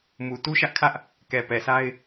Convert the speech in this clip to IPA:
m u˨ t u˦ ʃ ä˦ ʔ kʰ ä˦ ʔ | k ɛ˨ p ɛ˨ s a˦ ɪ̯

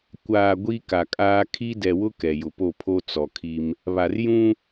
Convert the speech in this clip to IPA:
kʷ aː˨ ɡʷ i˦ k a˨ kʼ aː˦ kʰ i˦ d ɛ˨ w ʊ˦ k ɛ˨ j ʊ˨ p o˦˨ pʰ o˦ t͡s ɔ˨ kʰ i˦ m | β a˨ r j ũ˦

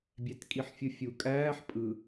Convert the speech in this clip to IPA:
bʲ æ t kʼ i ħ fʲ ɯ fʲ u kʼ æː ħ pʼ ɯ

